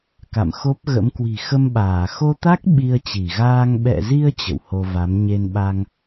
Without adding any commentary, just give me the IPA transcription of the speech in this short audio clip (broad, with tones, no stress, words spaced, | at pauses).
ka̰˧˨mxo˦˥p̚ɣə̰˧˥m kwi̤˨˩xə˧mɓaː˧˩ xo˧t̪a˦˥k̚ ɓi˧ə̯t͡ɕi˧˩ɣaː˧ŋ ɓɛ̰˧˨zi˧ə̯ t͡ɕə̰˧˨who˧va˨˦m ɲe˧nɓa˧ŋ